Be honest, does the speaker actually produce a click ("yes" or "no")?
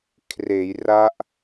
no